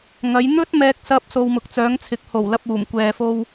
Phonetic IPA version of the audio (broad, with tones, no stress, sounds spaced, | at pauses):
ŋ ɐ˨˧ j n̪ ɵ˥ t̚ m ɛː˧ k̚ s ɐ˧ p̚ s o˨ w m ʊ˨ k̚ t͡s œː˨˧ ŋ t͡sʰ ɪ˨ k̚ h o˨˩ w l ɐ˧ p̚ uː˨˩ m kʷ ɛː˨ f o˧ w